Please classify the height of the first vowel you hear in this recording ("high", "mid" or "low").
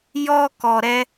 mid